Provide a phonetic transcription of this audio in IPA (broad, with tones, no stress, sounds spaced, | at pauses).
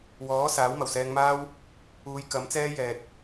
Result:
w ɔː˨˥ s aː˨˥ w m ɐ˨˩ w s ɛː˧ ŋ m aː˥ w | uː˨˧ j k ɐ˨˥ m t͡s ɛː˥ j ɛː˨ t̚